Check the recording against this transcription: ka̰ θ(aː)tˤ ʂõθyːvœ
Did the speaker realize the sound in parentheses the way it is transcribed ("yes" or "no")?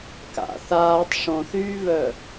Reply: yes